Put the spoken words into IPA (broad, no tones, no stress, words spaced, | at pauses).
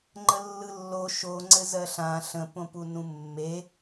ŋ͡ǃəlːɯlːo ʃoŋ͡ǀɘ zɜɬã ɬə̃põpu nũmːe